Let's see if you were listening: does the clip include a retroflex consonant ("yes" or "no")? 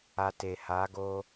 no